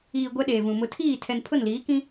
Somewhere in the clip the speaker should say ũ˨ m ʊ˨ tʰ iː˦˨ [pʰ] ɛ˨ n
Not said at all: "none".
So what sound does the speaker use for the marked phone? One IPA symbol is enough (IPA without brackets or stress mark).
tʰ